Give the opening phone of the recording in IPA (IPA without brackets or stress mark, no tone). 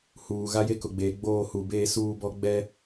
h